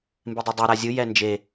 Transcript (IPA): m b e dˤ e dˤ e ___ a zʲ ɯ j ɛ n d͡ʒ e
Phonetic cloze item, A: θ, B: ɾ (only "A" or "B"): B